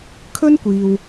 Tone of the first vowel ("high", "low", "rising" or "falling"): high